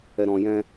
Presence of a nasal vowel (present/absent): present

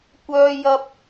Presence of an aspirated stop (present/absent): absent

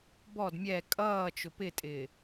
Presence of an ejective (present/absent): present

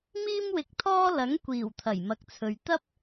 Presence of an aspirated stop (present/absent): present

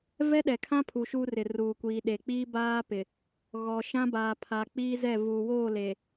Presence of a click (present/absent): absent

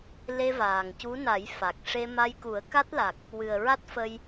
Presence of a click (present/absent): absent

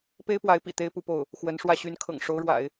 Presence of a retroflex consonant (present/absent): present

